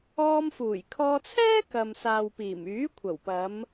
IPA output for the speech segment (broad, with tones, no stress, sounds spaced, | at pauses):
ɔː˧ m f uː˨˩ j kʰ ɔː˧ t͡sʰ ɛː˥ k ɐ˨ m s aː˨ w p iː˨˩ m yː˨˥ kʷʰ ɐ˨˩ w p ɐ˨˧ m